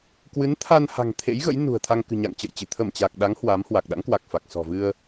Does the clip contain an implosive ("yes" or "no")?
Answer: yes